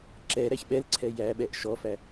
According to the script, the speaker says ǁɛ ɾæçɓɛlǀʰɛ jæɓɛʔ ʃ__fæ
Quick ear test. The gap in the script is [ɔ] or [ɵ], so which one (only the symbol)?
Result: ɔ